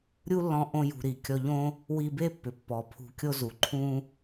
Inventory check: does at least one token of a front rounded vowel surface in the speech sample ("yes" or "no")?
yes